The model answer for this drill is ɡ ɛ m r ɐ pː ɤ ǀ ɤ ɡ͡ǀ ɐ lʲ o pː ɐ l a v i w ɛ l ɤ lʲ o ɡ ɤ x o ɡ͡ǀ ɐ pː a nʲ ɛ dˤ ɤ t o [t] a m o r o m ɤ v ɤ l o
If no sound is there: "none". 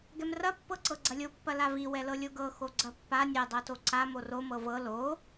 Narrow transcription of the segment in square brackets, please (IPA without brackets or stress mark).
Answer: ǀ